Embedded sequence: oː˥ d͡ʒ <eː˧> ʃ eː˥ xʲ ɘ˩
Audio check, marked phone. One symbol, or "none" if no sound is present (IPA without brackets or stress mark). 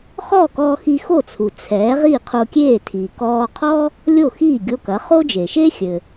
eː˩